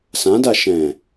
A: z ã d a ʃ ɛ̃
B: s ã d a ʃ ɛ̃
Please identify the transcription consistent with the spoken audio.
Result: B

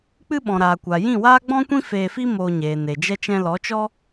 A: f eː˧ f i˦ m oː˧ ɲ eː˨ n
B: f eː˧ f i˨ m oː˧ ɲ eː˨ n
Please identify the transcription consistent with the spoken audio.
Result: A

